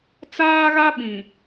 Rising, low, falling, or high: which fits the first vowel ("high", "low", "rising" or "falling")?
high